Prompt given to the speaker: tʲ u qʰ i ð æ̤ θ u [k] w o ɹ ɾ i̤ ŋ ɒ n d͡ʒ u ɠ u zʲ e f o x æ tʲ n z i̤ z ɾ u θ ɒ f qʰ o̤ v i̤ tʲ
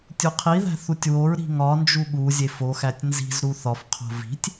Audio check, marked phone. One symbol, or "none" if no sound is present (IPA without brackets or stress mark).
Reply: tʲ